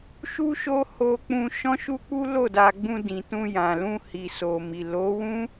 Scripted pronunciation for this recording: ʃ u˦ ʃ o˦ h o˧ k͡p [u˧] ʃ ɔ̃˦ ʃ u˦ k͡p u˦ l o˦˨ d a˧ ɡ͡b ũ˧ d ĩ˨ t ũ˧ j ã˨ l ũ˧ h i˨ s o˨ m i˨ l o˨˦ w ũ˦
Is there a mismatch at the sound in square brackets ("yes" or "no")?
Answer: yes